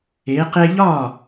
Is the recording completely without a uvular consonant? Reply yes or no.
no